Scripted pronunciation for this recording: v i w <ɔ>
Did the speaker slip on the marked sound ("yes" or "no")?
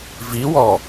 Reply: no